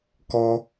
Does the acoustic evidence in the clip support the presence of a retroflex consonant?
no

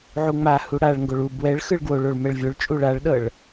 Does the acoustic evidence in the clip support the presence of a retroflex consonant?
yes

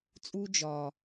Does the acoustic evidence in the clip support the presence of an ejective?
yes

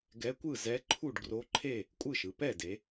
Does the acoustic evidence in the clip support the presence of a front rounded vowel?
no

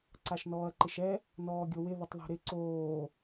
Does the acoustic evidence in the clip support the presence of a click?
yes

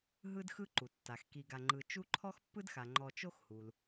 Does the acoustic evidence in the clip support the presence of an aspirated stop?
yes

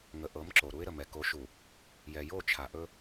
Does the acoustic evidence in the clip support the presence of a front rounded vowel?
no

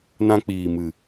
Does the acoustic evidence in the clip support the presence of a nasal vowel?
yes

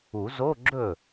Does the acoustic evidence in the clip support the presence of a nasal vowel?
no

